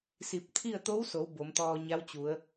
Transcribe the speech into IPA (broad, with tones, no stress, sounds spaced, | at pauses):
s i˧˩ p̚ t̪ʰ i˥˨ ə̯ t̪ o˧˥ w s o˩˧ w b o˩˧ m t̪ ɔː˧ ɲ a˧˥ w t͡ɕ u˩˧ ə̯